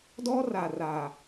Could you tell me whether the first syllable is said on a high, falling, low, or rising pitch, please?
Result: high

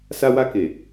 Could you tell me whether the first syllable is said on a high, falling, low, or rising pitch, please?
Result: high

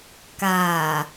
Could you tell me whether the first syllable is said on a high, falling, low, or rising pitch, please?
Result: low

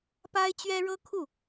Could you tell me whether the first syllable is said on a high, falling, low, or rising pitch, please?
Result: high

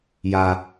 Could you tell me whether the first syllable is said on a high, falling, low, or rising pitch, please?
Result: high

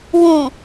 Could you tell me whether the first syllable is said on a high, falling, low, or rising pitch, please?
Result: low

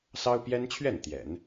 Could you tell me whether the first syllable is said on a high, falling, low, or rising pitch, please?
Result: high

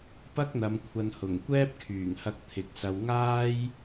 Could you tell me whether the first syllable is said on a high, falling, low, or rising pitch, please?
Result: high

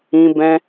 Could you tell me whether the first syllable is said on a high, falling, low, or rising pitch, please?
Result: high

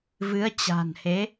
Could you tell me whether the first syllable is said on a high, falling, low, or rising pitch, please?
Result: rising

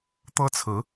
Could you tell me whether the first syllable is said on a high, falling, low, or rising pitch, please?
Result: high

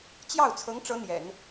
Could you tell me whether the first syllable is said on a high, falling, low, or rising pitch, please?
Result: falling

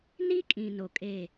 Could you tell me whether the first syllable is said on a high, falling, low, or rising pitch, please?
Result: high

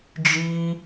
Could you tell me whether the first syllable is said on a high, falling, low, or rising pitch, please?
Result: high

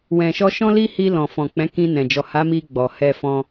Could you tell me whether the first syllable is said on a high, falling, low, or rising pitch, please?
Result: low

